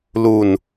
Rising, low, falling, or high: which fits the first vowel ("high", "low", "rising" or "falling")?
low